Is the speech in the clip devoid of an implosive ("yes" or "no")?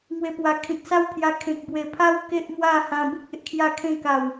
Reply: yes